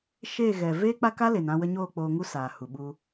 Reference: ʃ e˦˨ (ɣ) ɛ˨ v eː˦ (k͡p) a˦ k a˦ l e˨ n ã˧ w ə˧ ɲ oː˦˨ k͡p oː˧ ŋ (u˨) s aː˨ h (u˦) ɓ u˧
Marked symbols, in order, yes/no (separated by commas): yes, yes, no, no